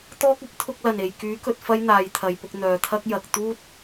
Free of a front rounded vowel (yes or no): no